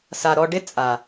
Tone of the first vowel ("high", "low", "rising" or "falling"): low